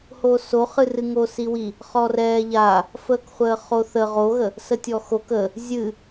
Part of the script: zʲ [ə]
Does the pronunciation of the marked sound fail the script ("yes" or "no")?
yes